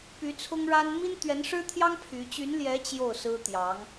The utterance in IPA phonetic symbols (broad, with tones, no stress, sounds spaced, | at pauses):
p y˧˥ t͡sʰ ʊ˥ ŋ ɻ a˥ n m i˥ n t̪ ɥ ɛ˧˥ n ʂ ɻ̩˥ t̪ʰ j ɑ˥ ŋ pʰ y˧˥ t͡ɕ y˧˥ n l j ɛ˧˥ t͡ɕ j o˥˩ ʊ̯ s ɹ̩˥ t̪ j ɑ˧˥ ŋ